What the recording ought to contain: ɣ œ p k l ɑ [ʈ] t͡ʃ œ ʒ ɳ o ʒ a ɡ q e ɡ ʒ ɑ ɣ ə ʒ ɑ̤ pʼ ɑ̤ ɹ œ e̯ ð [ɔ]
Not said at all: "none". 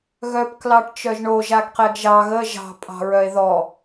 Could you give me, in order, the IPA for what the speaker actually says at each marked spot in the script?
ʈ, ɔ

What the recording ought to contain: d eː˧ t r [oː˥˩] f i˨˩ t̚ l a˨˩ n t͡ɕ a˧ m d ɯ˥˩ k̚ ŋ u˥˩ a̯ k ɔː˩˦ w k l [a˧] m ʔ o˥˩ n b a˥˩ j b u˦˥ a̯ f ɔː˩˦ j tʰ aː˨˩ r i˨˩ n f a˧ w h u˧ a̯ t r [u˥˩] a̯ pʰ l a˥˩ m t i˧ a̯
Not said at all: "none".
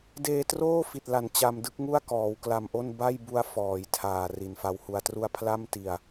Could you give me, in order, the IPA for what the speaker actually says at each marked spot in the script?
oː˥˩, a˧, u˥˩

